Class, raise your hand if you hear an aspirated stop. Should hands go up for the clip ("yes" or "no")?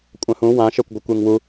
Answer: no